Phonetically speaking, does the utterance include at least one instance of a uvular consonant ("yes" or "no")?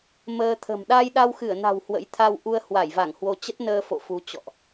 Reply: no